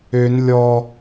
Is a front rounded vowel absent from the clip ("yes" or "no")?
no